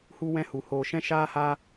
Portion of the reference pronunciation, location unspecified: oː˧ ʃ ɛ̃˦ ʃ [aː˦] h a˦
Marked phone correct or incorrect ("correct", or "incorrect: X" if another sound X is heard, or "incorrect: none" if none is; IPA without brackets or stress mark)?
correct